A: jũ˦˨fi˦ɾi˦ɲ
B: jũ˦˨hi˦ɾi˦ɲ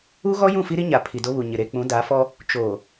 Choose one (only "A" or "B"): A